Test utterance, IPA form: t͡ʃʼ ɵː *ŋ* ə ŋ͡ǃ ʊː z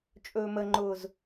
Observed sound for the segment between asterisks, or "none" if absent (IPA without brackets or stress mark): m